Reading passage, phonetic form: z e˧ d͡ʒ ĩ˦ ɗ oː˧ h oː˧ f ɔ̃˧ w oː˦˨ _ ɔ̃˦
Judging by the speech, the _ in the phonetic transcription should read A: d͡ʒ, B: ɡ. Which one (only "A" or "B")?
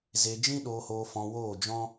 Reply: A